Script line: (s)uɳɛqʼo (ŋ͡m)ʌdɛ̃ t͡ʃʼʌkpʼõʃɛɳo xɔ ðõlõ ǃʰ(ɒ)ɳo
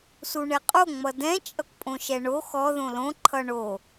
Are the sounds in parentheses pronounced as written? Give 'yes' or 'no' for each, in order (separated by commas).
yes, yes, no